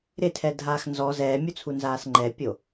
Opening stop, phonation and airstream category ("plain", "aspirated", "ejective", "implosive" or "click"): aspirated